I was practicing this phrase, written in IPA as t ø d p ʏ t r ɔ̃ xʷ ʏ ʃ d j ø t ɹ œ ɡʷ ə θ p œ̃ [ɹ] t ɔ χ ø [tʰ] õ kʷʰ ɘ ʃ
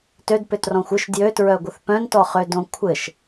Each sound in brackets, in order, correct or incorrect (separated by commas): incorrect, incorrect